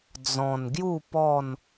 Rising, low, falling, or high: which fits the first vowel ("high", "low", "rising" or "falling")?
low